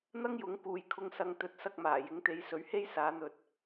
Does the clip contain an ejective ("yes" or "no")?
no